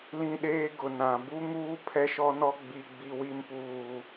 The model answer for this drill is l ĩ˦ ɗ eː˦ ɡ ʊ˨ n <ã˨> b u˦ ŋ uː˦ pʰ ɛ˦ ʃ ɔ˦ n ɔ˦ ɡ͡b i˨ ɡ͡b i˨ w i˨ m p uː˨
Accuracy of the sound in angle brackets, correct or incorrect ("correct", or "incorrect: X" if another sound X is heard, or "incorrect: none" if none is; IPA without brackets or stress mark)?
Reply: correct